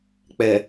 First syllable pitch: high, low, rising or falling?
low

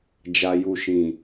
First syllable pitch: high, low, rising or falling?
low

